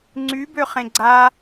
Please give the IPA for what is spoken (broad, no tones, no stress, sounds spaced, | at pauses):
ŋ͡ǀ y b ø χ ẽ ɡ͡ǀ a